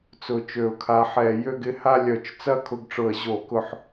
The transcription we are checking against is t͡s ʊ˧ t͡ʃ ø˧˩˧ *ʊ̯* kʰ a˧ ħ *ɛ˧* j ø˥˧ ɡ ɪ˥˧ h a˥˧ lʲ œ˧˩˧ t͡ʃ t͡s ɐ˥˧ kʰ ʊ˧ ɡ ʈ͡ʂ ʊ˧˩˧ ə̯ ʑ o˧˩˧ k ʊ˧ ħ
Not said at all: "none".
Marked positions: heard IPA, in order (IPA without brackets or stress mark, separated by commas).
ʊ̯, ɛ˧˩˧